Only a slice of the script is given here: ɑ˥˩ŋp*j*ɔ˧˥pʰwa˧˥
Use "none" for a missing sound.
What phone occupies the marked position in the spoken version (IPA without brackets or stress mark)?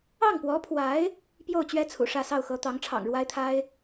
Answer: w